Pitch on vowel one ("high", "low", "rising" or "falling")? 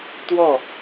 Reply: falling